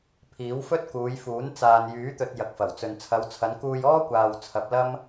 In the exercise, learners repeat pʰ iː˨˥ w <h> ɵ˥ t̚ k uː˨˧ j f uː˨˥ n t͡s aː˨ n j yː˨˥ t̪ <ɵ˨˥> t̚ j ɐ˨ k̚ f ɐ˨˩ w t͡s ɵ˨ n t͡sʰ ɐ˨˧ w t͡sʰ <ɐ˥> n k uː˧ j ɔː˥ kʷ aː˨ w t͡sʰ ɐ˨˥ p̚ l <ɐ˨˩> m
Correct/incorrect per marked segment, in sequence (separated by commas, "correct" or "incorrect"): incorrect, incorrect, incorrect, incorrect